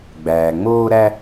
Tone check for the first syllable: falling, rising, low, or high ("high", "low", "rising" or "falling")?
low